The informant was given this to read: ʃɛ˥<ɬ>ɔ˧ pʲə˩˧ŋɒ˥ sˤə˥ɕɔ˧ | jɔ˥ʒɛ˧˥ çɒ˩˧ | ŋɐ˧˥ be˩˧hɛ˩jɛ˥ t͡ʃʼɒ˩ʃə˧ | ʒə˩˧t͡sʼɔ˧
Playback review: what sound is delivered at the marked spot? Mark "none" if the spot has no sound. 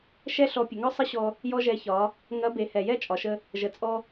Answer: ɬ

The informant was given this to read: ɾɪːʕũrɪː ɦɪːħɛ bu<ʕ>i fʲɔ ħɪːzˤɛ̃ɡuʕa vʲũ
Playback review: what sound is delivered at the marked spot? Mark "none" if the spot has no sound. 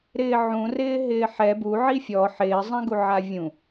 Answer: ʕ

